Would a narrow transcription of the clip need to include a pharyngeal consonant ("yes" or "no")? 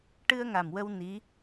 no